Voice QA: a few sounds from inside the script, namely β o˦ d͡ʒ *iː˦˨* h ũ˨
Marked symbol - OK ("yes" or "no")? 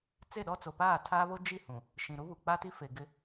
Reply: no